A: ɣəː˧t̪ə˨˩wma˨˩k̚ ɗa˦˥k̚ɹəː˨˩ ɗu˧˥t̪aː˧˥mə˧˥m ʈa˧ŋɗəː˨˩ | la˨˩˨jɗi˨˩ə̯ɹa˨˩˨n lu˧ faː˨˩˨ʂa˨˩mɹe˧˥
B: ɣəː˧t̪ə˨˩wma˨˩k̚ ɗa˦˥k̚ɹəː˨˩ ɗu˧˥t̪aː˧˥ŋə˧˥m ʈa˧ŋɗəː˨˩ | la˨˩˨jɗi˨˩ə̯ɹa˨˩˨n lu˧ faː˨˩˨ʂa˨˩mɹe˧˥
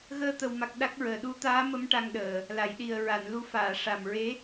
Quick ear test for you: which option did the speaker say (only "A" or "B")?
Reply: A